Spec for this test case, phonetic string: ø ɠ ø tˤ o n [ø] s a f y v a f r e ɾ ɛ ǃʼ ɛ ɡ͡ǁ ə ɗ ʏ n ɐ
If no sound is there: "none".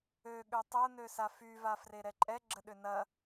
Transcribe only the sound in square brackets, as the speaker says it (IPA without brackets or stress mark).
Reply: ø